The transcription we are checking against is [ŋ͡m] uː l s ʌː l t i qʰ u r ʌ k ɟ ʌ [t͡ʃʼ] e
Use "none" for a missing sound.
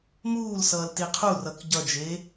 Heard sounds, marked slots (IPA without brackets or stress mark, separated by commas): m, d͡ʒ